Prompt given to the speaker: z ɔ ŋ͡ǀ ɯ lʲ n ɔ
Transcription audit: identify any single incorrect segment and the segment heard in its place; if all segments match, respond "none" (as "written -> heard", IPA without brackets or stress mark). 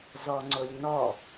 ɯ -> ʊ